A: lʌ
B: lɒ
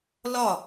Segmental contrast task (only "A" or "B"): B